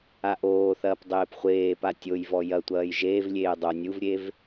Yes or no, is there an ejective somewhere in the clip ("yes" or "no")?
no